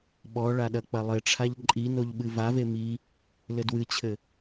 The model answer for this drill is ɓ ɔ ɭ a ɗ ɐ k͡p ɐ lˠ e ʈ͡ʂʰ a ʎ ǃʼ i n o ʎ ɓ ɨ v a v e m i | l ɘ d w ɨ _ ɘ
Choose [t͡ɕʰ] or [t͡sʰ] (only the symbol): t͡ɕʰ